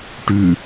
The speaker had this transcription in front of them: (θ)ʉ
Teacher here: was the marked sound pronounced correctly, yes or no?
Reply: no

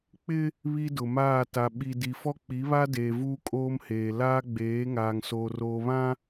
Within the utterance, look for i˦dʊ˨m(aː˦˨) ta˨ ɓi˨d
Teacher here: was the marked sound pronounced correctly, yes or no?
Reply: yes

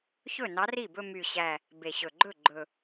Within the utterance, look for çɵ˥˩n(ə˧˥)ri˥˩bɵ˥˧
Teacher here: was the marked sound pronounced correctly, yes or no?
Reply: no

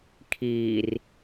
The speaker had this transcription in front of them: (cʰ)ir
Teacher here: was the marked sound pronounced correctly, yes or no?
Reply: no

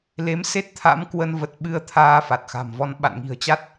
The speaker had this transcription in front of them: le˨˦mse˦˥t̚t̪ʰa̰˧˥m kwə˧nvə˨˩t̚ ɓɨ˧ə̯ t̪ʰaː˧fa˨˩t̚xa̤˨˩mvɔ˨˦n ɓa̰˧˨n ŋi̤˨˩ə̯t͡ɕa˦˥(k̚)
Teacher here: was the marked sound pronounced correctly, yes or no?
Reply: no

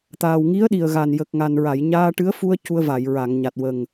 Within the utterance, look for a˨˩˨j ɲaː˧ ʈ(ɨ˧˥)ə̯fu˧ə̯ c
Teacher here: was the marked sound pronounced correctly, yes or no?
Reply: yes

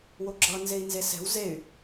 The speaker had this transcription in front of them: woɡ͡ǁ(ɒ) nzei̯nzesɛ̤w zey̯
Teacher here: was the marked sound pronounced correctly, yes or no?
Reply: no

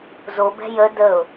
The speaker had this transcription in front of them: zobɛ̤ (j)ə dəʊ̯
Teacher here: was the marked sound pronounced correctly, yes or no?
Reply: yes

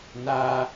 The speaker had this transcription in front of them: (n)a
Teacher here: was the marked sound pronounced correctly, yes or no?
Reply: yes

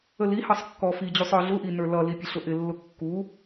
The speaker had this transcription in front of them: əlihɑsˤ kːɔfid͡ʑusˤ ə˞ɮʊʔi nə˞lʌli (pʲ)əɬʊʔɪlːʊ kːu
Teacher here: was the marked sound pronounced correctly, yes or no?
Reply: yes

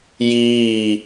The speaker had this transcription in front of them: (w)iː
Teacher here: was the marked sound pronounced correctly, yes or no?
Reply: no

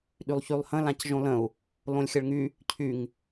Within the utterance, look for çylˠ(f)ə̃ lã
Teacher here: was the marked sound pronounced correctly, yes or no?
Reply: no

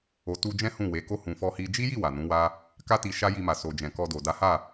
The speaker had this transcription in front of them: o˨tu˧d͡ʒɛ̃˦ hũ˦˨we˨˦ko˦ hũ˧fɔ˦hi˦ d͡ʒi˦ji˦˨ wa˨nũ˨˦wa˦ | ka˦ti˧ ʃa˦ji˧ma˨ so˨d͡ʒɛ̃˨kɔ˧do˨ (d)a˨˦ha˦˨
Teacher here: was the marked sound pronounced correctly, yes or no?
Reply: yes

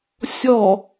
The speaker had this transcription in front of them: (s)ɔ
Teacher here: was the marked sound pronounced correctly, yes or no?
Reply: no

